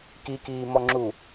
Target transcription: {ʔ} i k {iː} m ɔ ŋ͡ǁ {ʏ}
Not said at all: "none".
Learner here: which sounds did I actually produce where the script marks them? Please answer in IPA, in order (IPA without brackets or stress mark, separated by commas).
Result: k, iː, u